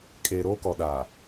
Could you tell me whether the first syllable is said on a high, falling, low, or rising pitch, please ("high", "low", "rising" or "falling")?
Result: low